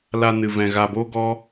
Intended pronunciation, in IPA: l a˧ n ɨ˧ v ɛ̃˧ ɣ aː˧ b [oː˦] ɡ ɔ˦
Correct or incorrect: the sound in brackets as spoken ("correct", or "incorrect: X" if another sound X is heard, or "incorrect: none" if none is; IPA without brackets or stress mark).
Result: correct